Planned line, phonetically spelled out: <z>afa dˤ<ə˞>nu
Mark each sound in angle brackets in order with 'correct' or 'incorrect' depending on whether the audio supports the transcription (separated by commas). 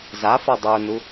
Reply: correct, correct